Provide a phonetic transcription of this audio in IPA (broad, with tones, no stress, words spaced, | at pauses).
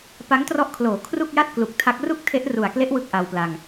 pa˦˥ŋtrɔ˦˥ʔkʰloː˩˦ kʰru˥˩k̚ja˥˩t̚ klu˨˩k̚tʰa˦˥k̚ ru˥˩k̚ tʰe˦˥ʔru˨˩a̯ kle˦˥ʔ wɯ˥˩k̚ʔa˧wpla˧ŋ